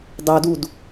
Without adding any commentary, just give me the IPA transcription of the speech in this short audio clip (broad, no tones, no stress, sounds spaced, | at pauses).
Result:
dˤ ɵ d u d